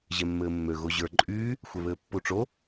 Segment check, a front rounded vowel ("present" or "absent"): present